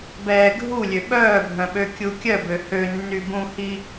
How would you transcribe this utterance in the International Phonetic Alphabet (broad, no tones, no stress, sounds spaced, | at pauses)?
b ɛː ɡʱ u lʲ ø ɓ œː bʱ œ̃ ɓ ø kʲ u kʲ œ b ø h ø nː y b ũ h i